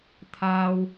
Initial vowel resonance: oral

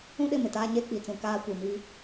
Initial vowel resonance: nasal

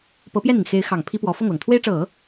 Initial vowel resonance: oral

